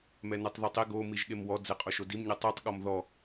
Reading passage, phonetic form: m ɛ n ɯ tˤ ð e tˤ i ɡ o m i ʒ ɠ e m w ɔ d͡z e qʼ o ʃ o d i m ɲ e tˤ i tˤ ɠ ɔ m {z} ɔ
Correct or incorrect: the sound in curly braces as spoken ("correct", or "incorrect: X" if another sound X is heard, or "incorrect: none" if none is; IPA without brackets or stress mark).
incorrect: ð